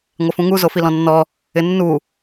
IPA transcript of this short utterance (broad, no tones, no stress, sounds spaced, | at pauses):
ŋʷ ɪ f ũ ŋ u z o f i l ɔ̃ nː ɔ | ɪ nː u